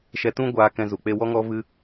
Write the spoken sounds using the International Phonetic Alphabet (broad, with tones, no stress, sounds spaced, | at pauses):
ʃ ɛ˧ t ũ˦ ɡʷ aː˧ k ɛ̃˧ z u˨ k͡p e˧ w ɔ˦ ŋ ɔ˦ v ɨ˦